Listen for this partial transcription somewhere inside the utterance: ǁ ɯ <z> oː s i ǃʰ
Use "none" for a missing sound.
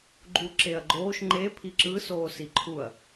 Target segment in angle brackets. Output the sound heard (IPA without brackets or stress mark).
s